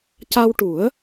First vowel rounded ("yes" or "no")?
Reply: no